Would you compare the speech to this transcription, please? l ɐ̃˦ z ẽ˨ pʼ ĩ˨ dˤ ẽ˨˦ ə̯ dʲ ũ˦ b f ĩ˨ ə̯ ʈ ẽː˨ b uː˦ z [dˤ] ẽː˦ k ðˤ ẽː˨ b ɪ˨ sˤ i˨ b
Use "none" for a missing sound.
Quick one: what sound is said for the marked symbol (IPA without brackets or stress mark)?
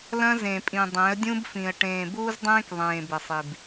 dˤ